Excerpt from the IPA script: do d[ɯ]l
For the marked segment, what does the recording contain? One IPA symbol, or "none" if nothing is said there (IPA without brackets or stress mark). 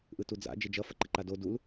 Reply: u